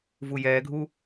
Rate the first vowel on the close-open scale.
close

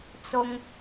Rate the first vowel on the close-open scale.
close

